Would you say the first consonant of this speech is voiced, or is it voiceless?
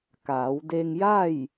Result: voiceless